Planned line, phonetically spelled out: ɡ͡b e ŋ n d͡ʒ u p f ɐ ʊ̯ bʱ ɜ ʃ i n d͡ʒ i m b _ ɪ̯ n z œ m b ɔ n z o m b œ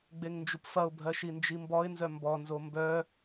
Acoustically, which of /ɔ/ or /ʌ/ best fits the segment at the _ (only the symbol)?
ɔ